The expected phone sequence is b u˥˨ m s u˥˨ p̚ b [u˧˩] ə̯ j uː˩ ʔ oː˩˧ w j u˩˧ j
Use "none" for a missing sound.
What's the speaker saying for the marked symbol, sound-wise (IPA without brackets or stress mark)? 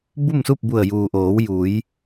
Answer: u˧˩